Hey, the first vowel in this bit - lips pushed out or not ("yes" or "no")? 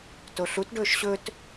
yes